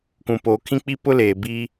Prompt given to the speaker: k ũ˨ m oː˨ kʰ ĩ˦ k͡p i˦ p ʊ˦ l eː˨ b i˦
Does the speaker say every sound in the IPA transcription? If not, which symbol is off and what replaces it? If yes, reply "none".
m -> p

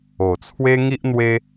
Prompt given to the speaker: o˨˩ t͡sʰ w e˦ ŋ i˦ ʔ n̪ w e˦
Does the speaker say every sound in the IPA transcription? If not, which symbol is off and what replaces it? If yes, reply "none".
none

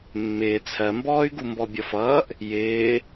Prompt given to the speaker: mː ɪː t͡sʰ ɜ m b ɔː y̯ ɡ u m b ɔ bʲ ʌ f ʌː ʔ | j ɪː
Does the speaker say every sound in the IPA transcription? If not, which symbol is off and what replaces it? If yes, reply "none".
none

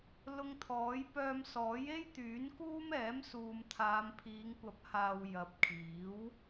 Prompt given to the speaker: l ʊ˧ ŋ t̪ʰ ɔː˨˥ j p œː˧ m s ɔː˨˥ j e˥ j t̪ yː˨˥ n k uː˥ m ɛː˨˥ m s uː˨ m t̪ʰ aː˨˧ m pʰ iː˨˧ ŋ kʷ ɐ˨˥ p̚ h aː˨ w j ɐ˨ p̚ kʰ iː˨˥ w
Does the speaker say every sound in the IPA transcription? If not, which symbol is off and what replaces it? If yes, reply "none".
none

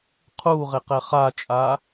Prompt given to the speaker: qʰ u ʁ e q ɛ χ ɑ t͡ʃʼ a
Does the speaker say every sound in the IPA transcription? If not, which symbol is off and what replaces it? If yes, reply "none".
ɑ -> a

